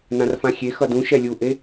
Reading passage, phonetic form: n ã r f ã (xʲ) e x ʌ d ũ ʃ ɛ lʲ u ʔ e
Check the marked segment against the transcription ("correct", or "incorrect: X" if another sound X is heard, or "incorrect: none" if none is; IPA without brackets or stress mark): correct